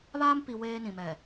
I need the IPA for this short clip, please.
β aː˦ m p i˨ w eː˦ n ĩ˨ m ɛ˨

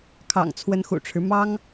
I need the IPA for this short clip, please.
kʰ ɑ̰˨˩ ŋ t͡sʰ w ə˧˥ n x ṵ˨˩ ʈ͡ʂʰ ɻ̩˦ m ɑ˥ ŋ

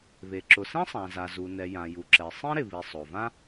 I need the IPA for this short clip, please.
β e˩ ǁ ʊ˩ s ẽ˥ sˤ ã˩ z a˩ z u˩ n ɛ˩ j ã˩ j u˩ ǁ ɛ˩ sˤ ĩ˥ ɾ ɪ˩ β i˩ sˤ o˩ v ã˥

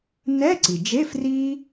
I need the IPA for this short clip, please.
n ɛ˧˥˧ ǀ i˩ d͡ʒ e˧˥˧ f r i˥

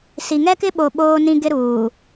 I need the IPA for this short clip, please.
s i˨ ŋ ɛ˦ k ɪ˦ ɓ o˨ ɓ oː˦ n ĩ˦ ɡ ɪ˦ ɾ uː˨

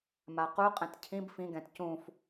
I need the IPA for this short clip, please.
m a q u qʼ ɛ̃ t cʰ ĩ b f ĩ ɡ ɛ̃ t c ũ f

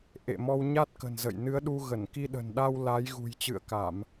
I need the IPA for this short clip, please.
ʔ ḛ˧˨ m ɔ˧ w ɲ a˦˥ t̚ k ə̤˨˩ n z ə̰˧˨ j n ɨ˨˦ ə̯ ɗ u˧ ɣ ə˧˩ n k i˧ ɗ ə̤˨˩ n ɗ a˧ w l a˨˦ j ɣ ṳ˨˩ j t͡ɕ ɨ̰˧˨ ə̯ k a˧˩˨ m

